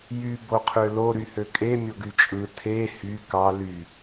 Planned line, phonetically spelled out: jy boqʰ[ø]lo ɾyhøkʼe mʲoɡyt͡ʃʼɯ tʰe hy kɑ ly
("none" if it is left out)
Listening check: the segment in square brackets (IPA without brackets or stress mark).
ø